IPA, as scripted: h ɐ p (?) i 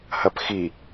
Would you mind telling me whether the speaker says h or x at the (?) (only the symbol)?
x